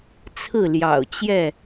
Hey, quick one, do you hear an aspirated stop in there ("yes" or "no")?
yes